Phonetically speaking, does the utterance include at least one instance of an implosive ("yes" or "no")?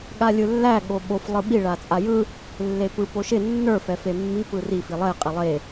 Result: yes